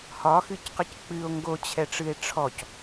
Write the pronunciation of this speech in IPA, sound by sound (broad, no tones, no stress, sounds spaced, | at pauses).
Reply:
h ɒ x ɨ c q ɨ c k͡p ɨ o̯ ŋ ɡ o t͡ɕʰ ɛ ʈ͡ʂ ɨ e̯ ʈ͡ʂʰ ɔ c